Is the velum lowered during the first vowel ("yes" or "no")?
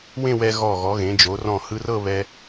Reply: yes